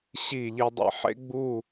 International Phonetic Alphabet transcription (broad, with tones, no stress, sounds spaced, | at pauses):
ɕ i˧˩ ʎ i˧ dˤ ḛ˧ ħ ḛ˥ ɡ͡b u˥˧